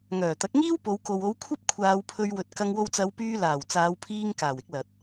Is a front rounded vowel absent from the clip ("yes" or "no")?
no